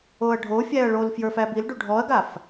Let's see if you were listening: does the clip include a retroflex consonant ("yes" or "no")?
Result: yes